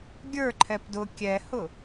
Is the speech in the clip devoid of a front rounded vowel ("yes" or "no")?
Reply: yes